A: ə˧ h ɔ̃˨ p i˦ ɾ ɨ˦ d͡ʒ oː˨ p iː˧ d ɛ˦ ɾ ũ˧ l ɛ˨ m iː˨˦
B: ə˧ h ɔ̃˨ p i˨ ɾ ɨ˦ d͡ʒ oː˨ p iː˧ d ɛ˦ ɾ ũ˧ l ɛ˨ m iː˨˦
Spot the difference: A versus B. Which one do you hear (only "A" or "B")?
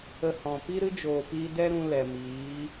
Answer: A